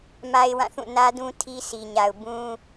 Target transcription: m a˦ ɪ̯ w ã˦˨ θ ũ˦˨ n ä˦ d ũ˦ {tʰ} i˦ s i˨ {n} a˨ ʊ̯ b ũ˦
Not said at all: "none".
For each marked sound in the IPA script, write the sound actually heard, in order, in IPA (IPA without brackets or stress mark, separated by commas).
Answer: tʰ, ɲ